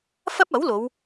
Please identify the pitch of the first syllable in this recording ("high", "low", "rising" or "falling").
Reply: high